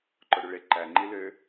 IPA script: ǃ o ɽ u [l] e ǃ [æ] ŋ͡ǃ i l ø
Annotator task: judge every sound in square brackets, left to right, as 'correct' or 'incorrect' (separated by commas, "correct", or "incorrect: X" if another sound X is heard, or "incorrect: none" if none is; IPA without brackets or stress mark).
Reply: incorrect: ɭ, correct